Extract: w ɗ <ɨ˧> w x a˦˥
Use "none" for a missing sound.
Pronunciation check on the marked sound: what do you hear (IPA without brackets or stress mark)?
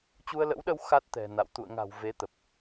ə˧